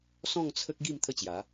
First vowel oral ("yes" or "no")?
no